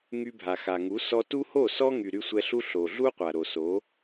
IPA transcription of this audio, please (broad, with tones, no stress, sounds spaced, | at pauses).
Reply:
ŋ y˧ bʱ a˨ x a˨ ŋ u˨˦ s ɔ˧ t u˦ h o˦˨ s ɔ˦ ŋ y˨ ɾ y˧ sʷ ɛ˧ ɬ u˦ ɬ o˨ ɮ u˦ qʷ a˨ ɾ o˨ s o˨˦